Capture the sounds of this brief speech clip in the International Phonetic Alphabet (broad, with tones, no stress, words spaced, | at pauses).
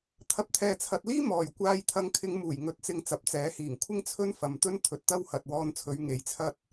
t̪ʰɐ˨˥p̚t̪ʰɛː˨t͡sʰɐ˨t̚liː˥ mɔː˨˩j kʷaː˧jt̪ʰɐ˧ŋkʰɪ˧ŋmuː˨˩j ŋɵ˨˥t̚t͡sɪ˧ŋ t͡sɐ˨p̚t͡sɛː˨˥hiː˨˩ŋ kʷʰɪ˥ŋt͡sʰɵ˥n fɐ˨mt̪ɵ˥n t̪ʰɵ˨˥t̚t̪ɐ˥whɐ˨t̚ wɔː˧nt͡sʰɵ˨˧ɥ ŋe˨jt͡sʰɐ˥t̚